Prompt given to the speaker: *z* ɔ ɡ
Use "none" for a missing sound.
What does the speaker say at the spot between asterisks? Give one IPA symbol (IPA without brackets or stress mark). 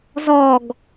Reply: z